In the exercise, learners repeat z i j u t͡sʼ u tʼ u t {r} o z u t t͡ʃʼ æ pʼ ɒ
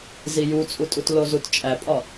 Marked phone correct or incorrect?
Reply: incorrect